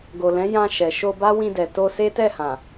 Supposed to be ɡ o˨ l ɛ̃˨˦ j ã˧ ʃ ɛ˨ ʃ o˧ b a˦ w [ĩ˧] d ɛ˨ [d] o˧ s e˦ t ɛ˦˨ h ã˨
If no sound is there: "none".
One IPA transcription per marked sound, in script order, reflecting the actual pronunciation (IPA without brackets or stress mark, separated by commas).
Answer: ĩ˧, t